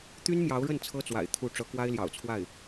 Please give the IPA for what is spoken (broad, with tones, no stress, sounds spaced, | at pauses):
t̪ y˥ n m j ɑ˧˥ ʊ̯ ɻ ə˥˩ n t͡sʰ ɤ˥ t͡s w a̰˨˩ ɪ̯ t̪ʰ u˥˩ ʈ͡ʂ ɤ˧˥ k w a˥ ɪ̯ l j ɑ̰˨˩ ʊ̯ t͡sʰ w a˥˩ ɪ̯